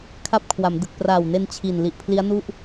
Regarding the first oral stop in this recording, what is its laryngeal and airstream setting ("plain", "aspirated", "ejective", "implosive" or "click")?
aspirated